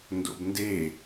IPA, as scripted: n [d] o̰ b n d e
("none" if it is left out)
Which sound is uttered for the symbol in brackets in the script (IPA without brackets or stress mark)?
d